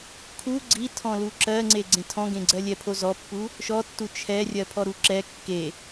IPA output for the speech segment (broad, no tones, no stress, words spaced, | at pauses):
kʰu ɡ͡ǀitʰɔ̃lu ǁɜŋ͡ǀe ɡ͡ǀẽtʰɔ̃ɡẽɡ͡ǀɜ lʲɛpʰozɔpːu | ʃɔtːu t͡ʃʰɛrʲɜ pʰɔɾuǁɛ kːe